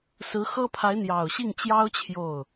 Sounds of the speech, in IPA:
sɹ̩˧˥xɤ˥pʰa˧˥ɪ̯ n̪jɑ˨˩ʊ̯ɕi˥˩ŋt͡ɕjɑ˥ʊ̯ t͡ɕʰjo˥˩ʊ̯

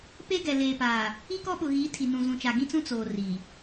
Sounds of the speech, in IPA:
pe˦ɡɛ˨ leː˨paː˨ | i˦kɔ˦ɓʊ˨ɣiː˨˦ tʰi˨nũ˨ zũ˨t͡ʃa˨ɡĩ˦t͡sũ˦ t͡soː˨ ri˨

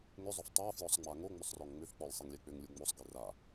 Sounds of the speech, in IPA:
ŋʏzˤʏf tˤafjɔsˤ ŋ͡maŋoŋ͡mʏsˤrɔŋ ŋ͡mʏfk͡pɔlʲ sˤiŋlʲɛk͡pʏŋlʲu ŋ͡mosˤ ɡira

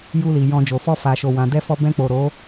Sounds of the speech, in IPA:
ju˧li˨ jɔ̃˨ d͡ʒo˨fɔ˧ fa˨ʃo˨ wã˨dɛ˧fɔ˧ bɛ̃˧k͡po˨ ɾo˨˦

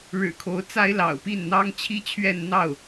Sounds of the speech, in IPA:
ɻɻ̩˨˩kʰo˧˥ʊ̯t͡sa˥ɪ̯ lɑ̰˨˩ʊ̯pi˥˩n n̪ɑ˥ŋt͡ɕʰi˥t͡ɕʰɥɛ˥˧n n̪ɑ˥˩ʊ̯

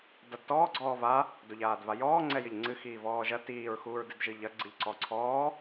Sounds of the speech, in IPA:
dadtɔː ɡ͡ǀɔːva | doʎaːdvajɔː ŋ͡ǀɛjɘʎŋ͡ǀɨ xiːvɔːʒɐ tiːɹxuːɹdɨd ʒɨʎɐ ɡ͡ǀɨʎǀɔǀʰɔː

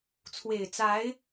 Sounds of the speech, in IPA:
t͡sʰwe˨˩ɪ̯t͡sa˧˥ɪ̯

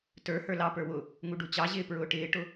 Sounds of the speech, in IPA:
tə˞ hə˞lɑpə˞ wʊ | ŋuɖut͡ɕɑʑɪː pɹʊːʈɪːʈʊ

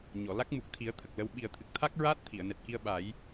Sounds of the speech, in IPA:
ɲɔ˨˩˨la˦˥k̚ mu˨˩k̚t̪ʰi˨˩˦ə̯ t̪ʰə˨˩k̚lə˧w ɓi˨˩ə̯t̪ʰɨ˨˩k̚t̪ʰa˦˥k̚ ɹaː˦˥t̚t̪ʰi˨˩˨ə̯nɛ˨˩t̚ki˧ə̯ ɓa˨˩˦j

